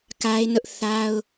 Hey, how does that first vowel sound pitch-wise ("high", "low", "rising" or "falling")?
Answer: high